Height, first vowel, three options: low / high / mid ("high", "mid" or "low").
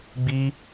high